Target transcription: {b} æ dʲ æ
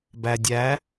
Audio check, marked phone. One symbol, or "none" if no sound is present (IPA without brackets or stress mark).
b